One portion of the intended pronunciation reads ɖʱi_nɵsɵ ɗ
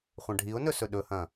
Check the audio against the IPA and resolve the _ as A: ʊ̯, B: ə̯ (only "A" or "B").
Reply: A